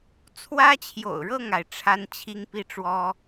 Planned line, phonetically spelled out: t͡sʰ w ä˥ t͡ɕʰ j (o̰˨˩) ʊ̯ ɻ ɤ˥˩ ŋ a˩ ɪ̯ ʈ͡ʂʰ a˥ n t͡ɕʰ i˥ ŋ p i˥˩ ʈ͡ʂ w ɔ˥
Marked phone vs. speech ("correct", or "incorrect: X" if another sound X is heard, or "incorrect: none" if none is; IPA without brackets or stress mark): correct